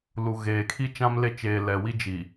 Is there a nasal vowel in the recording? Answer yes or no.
yes